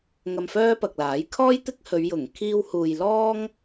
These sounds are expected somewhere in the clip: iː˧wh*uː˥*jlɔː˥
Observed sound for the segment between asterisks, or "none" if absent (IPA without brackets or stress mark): uː˨